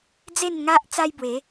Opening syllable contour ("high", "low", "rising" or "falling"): falling